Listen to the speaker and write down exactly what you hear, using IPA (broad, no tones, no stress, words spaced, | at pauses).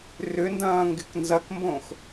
rʏndɐ̃ː ŋɡɪknzɐkmbõx